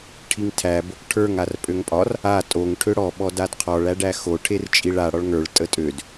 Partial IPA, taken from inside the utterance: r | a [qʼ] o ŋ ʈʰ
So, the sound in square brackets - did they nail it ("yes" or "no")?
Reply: no